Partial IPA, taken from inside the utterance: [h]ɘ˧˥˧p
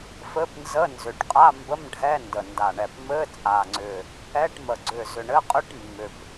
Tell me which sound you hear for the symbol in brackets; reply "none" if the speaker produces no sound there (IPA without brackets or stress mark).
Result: f